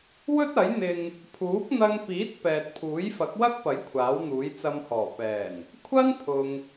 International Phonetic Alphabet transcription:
w ɵ˥ t̚ ɐ˨˥ j n̪ ɪ˧ ŋ | pʰ uː˨˥ k̚ n̪ ɐ˧ ŋ p iː˨˥ t̚ p ɛː˨ t̚ pʰ uː˨˥ j f ɐ˨˥ k̚ w ɐ˥ k̚ p ɐ˨˥ j kʷʰ aː˨˥ w n̪ uː˨˥ j t͡s ɐ˧ m h ɔː˨˩ p ɛː˨˩ n | kʷʰ ɐ˥ n pʰ ʊ˨ ŋ

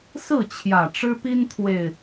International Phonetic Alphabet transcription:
s ɹ̩˥˨ t͡ɕʰ j ä˨˩ ʈ͡ʂ ɻ̩˦ p i˦ n t̪ʰ w e˨˩ ɪ̯

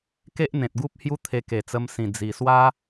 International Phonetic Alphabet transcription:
k e˦ ʔ n̪ ẽ˨ t̚ ɡ u˦ p̚ h j u˦ t̪ʰ e˧ k e˨˩ t͡s ə˧ m s ĩ˨˩ d͡z i˨˩ s w a˦

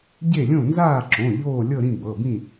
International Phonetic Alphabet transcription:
ɟ e˥˨ lʲ õ˥˨ n z aː˥˨ ǁ õ˩˧˩ ʎ oː˥˨ lʲ ɤ˥˨ ɾ ĩ˥˨ b ɤ˩˧˩ b ĩ˥˨

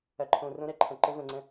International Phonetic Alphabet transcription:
ɐ˨ ǃʰ õ˨ r õ˦ ɾ ɛ˦ ǃʰ ɐ̃˨ ǃ ɘ˦ v ə̃˨ ŋ͡ǀ ə̃˦

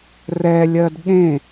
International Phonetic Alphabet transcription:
r ɛ lʲ ɜ d ɠ ẽ

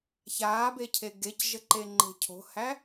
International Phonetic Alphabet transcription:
ç aː b e cʰ e ɡ e c ʒ ə ǃ e ŋ͡ǃ e̤ cʰ o̤ h æ

